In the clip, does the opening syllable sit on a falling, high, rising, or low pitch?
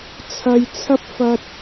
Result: low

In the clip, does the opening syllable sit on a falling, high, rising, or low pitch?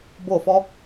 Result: falling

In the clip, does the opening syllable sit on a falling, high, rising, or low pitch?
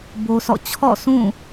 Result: high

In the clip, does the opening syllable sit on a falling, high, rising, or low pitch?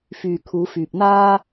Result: low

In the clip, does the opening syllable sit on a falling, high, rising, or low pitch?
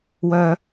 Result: low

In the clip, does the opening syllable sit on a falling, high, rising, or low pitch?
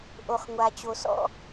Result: low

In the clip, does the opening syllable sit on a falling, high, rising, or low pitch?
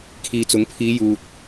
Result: low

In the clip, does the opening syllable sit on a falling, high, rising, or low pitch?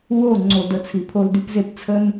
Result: falling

